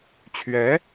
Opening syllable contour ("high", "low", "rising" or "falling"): rising